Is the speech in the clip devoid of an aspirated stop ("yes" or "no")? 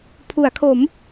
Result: no